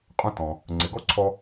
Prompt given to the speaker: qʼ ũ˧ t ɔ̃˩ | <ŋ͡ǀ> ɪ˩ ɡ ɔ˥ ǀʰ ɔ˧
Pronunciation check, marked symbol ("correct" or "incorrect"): correct